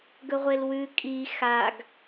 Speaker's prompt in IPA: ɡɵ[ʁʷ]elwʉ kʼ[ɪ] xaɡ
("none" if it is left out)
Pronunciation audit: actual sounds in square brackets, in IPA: ʁʷ, i

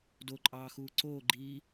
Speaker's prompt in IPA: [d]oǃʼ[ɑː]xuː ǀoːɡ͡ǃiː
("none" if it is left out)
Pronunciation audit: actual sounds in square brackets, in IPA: d, ɑː

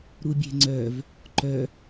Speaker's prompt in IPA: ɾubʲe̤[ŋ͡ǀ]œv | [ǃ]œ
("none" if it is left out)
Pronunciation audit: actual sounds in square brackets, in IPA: ŋ͡ǀ, ǃ

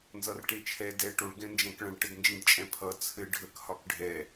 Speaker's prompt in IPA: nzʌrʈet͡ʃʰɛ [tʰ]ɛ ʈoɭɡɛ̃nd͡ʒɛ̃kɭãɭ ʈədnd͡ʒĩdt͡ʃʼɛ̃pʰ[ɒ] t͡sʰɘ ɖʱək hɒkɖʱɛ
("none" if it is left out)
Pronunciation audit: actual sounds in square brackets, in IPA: d, ʌ

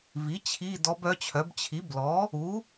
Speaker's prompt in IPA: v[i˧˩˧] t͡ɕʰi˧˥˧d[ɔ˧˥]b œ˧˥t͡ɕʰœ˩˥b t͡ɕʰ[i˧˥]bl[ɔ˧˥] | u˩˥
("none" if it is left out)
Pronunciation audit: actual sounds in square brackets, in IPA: i˩˥, ɔ˧˥, i˩˥, ɔ˩˥

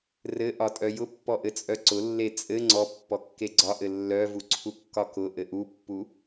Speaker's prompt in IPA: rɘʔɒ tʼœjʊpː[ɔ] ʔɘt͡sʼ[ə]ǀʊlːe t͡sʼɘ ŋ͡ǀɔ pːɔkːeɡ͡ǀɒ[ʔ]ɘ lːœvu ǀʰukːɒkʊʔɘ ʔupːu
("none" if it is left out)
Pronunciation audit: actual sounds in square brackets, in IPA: ɔ, œ, ʔ

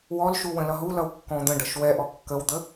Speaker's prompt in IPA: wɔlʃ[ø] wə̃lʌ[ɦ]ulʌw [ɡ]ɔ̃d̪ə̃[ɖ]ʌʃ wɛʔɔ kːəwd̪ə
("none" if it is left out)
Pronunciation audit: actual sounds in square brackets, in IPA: u, ɦ, kː, ɖ

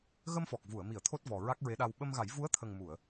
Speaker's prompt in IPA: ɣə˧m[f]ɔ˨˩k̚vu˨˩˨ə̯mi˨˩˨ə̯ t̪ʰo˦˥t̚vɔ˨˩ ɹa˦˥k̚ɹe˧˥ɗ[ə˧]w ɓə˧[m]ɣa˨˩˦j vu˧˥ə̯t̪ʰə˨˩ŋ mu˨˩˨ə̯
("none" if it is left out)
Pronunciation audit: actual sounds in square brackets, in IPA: f, a˧, m

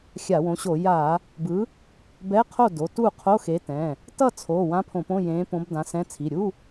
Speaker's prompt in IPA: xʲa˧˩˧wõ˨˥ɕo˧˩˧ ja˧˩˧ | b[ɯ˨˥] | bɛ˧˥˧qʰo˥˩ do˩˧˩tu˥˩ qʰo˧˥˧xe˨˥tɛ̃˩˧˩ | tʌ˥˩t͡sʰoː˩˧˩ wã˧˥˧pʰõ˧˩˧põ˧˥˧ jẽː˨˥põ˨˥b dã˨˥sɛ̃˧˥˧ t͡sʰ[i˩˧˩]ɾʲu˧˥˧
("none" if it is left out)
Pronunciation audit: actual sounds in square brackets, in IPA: ɯ˨˥, i˩˧˩

